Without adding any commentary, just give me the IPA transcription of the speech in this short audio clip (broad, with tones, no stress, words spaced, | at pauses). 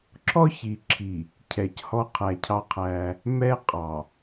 ǁʰɔ˦çi˨ǁʰi˨ | cʰɛ˨c hɔ˦qʰæ˨cʰɑ˦qʰæ˦ | mɛ˦qʼɑ˨